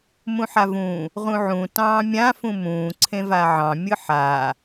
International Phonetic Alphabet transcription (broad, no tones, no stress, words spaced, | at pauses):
mũħavũ | ʁũʕũ tɑ̃ːmʲã fũmũː ǀʰẽvaʕɑ̃ mʲɯħa